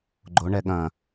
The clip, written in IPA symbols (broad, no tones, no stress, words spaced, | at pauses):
ɡ͡ǃoɳɛ ɠɐ̃